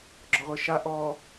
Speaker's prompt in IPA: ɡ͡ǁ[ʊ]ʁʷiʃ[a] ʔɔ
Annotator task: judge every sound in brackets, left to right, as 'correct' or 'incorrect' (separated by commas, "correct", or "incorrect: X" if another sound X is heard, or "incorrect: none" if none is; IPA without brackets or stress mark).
incorrect: ɔ, correct